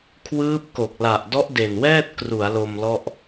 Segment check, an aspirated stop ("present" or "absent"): present